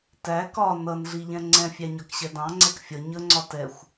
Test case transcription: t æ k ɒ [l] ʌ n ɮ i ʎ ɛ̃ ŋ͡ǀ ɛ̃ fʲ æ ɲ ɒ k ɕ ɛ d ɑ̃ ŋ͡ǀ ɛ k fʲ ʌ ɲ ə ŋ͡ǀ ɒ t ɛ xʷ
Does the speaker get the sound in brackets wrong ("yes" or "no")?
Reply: yes